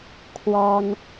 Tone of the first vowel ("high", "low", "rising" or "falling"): high